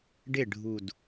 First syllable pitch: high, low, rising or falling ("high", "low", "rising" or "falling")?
falling